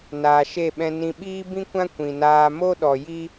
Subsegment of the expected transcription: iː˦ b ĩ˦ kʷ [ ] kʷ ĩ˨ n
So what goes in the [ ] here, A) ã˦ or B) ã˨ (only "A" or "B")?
A